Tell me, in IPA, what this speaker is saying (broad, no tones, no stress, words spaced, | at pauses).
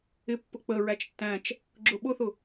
ɪpːʊ k͡pəɹæt͡ʃ tːæ̃t͡ʃ | ɡ͡ǁʊɓʊθʊ